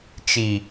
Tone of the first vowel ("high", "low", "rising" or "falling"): low